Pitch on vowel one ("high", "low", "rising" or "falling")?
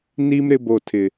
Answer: high